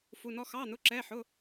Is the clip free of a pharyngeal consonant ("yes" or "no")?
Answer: no